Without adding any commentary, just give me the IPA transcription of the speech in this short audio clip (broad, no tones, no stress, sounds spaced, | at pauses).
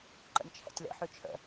ǃ ə̰ nʲ t͡ʃʰ ɛ̰ tʲ l ə̰ ħ ʉ t͡ʃʰ ə̰